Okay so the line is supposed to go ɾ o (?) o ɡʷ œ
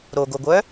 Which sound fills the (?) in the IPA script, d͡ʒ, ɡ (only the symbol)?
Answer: ɡ